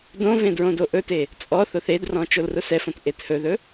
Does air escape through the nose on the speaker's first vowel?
yes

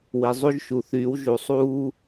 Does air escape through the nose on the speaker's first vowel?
no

